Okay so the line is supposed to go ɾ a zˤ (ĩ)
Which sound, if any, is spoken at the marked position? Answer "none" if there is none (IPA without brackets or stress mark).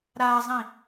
ĩ